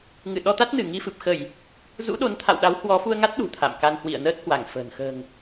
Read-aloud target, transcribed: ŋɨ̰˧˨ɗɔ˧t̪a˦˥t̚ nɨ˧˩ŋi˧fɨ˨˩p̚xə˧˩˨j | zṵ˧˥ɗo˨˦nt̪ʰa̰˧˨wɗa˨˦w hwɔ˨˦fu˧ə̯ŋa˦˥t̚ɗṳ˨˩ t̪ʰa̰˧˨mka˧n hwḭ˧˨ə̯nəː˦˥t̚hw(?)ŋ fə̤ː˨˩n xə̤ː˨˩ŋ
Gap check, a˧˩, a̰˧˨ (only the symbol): a˧˩